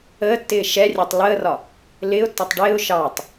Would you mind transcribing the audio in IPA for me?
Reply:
əː tː ɪː ʃ ɛ rʲ ɛ tˤ l əː r ɒ | l ɪː ʊ̯ tː ɒ tˤ ɖ ɪː ʊ̯ ʃ ɑ tˤ

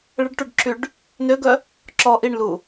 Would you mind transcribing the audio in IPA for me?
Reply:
ɭ ə ɖ ʈ u ɖ ǁ y ɖ | n ø ɡ œ | ǁ ɔ ʔ i ɳ l u

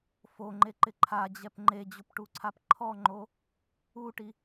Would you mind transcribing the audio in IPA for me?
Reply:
f o ŋ͡ǃ e ǃ ɪ ǃʰ a d͡ʑ ɛ p ŋ͡ǃ e d͡ʑ ʊ p ʈ u ǀʰ a p ǃʰ ɔ ŋ͡ǃ o | u ʈ i

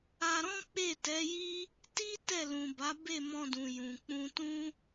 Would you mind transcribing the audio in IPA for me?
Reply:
a˧ ɾ ɔ̃˦ k͡p e˦˨ t ɛ˨˦ j i˦ | t i˦ t ɛ˦˨ l ũ˨ b a˨˦ b e˦˨ m ɔ̃˧ d ũ˨ j ũ˨ k͡p ũ˧ t ũ˦

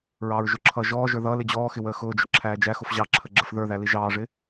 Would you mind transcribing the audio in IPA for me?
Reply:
ɹ ɑː ɹ ʒ ʊ ǁʰ ʌː ʒ ɔː ʒ ə˞ ð ʌː l ɪ d͡ʑ ɔː x ɪ w əː x ʊː d͡ʒ ʊ ǁʰ æː d͡ʒ æ x ʊ f ʑ ɑ ǁʰ ə ɡ͡ǁ ə f ð ə˞ ð æ l i ʒ ɑː ʐ ɪ

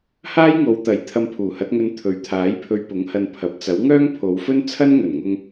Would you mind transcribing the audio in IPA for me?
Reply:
h aː˥ j ŋ o˨˧ w t̪ ɐ˨˥ j t̪ʰ ɐ˧ m pʰ uː˨˩ h ɐ˨˥ t̚ ŋ ɵ˧ n t̪ʰ ɵ˨ ɥ t̪ʰ aː˨˥ j pʰ ɵ˧ ɥ p ʊ˨˥ ŋ h ɐ˧ n pʰ ɐ˨˥ p̚ t͡s ɐ˨˥ w ŋ œː˥ ŋ pʰ o˨˧ w f ɵ˥ n t͡sʰ ɐ˥ n ŋ ɵ˨˩ n ŋ ʊ˧ ŋ

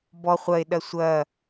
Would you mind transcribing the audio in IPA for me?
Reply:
b ɔ χʷ ɐ e̯ ɗ ɐ sʷ ɐ

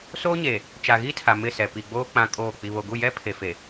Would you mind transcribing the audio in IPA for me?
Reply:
s oː˦ ɲ eː˨ | t͡ʃ a˨ ɣ iː˦ tʰ a˨ m ɪ˦˨ s ɛ˨ p i˨ ɡ͡b oː˦ k͡p ã˦ kʼ oː˦˨ k͡p i˨ β o˨ ɡ u˦˨ j ɛ˦ pʰ e˨ f e˨

